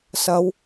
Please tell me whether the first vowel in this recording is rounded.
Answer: no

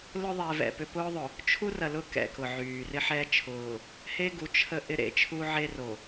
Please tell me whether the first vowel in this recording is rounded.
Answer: yes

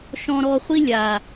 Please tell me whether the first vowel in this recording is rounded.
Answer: yes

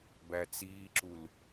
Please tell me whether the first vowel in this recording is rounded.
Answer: no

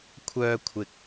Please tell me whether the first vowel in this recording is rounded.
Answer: yes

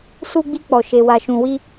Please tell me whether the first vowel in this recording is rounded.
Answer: yes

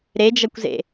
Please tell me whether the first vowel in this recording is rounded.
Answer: no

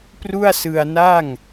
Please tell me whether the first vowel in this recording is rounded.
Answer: yes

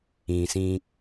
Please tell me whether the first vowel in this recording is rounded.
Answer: no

